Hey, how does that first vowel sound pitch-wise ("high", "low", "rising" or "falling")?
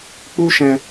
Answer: high